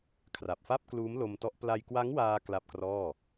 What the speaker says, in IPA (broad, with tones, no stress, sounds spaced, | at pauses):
kʰ r a˨˩ p̚ f a˥˩ p̚ k l uː˦˥ m l o˧ m t ɔ˦˥ ʔ p l a˧ j k w a˦˥ ŋ w aː˧ k l a˥˩ p̚ k r ɔː˥˩